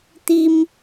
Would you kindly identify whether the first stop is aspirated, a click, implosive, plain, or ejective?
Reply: plain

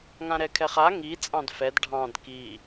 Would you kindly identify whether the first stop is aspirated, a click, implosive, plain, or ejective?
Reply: aspirated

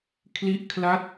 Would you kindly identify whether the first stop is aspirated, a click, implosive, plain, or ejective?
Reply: aspirated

